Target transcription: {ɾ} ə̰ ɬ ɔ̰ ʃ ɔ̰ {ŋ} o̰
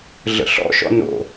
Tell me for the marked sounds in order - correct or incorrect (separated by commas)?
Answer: incorrect, incorrect